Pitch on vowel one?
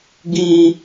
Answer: high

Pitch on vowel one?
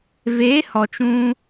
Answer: rising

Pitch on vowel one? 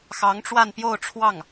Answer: rising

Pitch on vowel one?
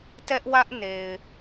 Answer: high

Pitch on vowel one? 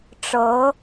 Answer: rising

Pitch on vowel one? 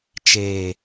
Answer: low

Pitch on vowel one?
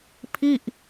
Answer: falling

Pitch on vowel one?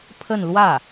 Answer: falling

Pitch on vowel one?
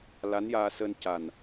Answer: rising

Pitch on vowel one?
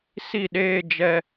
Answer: falling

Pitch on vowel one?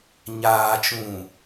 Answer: low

